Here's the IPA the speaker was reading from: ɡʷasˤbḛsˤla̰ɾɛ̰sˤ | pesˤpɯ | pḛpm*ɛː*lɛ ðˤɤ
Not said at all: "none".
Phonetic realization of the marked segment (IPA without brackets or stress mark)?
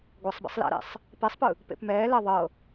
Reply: ɛː